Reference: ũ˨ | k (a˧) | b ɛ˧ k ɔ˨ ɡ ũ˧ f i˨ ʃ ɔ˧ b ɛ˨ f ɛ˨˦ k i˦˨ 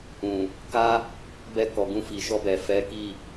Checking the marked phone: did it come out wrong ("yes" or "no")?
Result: yes